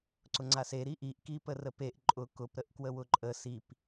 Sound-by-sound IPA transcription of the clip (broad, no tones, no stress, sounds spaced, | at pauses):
ǀ ʊ ŋ͡ǀ a s e ɾ i ʔ i ʔ k i p ə r ə p e ʔ ǃʼ ʊ k ʊ p ɾ ə ʔ k w ə w ʊ ǃʼ ə s i p